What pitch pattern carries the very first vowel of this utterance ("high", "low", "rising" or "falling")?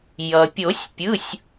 low